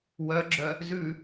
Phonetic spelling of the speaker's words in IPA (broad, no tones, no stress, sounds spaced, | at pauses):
w œ ɡ͡ǁ œ | z ʉ